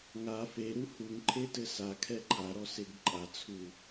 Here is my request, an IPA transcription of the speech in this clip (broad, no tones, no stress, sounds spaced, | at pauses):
ŋ a f e ɾ u h u ŋ ǃʰ e t ɘ s a kʰ ɛ ǃʰ a ɾ ɔ s e ɡ ǃʼ a t͡sʰ u